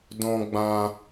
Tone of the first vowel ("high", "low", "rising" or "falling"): high